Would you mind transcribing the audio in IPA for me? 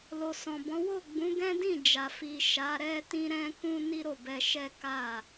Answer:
lo˨sɔ̃˨bɔ̃˨˦ wo˦˨ɡ͡bũ˨˦ɡɛ̃˦ dĩ˦˨d͡ʒa˨ fi˨ ʃa˨˦ɾɛ˦ tĩ˦ɾɛ̃˦kũ˦ ni˦ɾo˦˨bɛ˧ ʃɛ˦ka˦˨

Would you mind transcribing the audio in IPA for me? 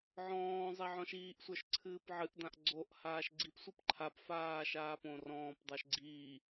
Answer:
ʕɔ̃ː zˤɛʕɔ̃ʃiːʔsʷə˞ʃ ǀʰɨːpʕɨʔdãʔ ɡ͡ǀoʔ haːʃɡ͡ǀipsʷip ǃʰapfaː ʃaːpõrɔ̃ːpdˤə˞ʃ ɡ͡ǀiː

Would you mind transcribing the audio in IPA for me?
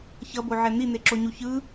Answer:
çʌboʕɛ n̪in̪eǁoɲu çɯ

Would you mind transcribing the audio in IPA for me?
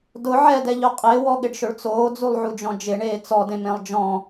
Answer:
dʊ ʕɛdɛʎʊ qʼɪːwɔɠɪɖʃʊɭ t͡soːd͡zulˠʕud͡ʒɔ̃ d͡ʒɪɳeː t͡sɔdẽmẽlˠ d͡ʒɔ̃

